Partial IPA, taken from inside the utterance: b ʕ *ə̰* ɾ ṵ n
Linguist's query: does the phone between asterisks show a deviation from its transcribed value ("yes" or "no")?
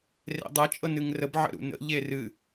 no